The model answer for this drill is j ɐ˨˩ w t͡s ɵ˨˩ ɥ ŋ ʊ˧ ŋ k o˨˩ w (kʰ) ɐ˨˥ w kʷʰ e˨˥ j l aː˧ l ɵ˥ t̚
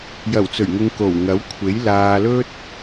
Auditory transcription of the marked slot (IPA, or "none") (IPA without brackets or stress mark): ŋ